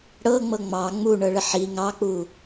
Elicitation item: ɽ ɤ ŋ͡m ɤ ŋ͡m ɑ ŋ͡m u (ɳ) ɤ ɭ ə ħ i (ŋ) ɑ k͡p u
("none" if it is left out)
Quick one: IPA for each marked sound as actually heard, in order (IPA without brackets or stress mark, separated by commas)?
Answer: ɳ, ŋ